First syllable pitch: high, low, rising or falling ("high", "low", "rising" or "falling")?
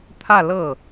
falling